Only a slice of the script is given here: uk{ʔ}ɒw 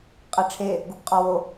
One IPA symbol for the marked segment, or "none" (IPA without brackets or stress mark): qʼ